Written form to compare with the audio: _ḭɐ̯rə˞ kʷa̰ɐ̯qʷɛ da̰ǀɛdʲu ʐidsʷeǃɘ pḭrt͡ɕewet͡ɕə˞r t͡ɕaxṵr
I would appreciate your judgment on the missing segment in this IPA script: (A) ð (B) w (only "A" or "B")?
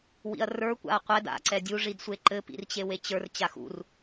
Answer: B